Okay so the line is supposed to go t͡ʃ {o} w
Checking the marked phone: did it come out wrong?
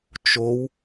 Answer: no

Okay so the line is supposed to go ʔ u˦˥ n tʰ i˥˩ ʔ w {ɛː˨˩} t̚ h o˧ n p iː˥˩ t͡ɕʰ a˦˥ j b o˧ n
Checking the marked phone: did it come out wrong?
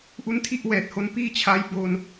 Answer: no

